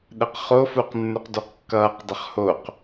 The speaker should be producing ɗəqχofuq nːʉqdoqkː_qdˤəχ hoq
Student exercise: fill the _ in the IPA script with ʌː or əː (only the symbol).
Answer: ʌː